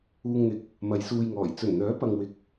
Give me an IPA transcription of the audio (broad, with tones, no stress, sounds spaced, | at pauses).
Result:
uː˧ ŋ n̪ ɪ˨ k̚ | m ɐ˨˧ j s uː˧ j ŋ ɔː˨˩ j t͡s ɵ˨˩ n n̪ œː˨˥ p ɐ˨ ŋ w ɪ˨ k̚